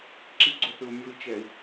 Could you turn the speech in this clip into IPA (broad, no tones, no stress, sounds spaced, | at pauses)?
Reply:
ǁ i ɡ͡ǀ o θ ɯ u̯ mʲ o i̯ t͡ʃ ɛ i̯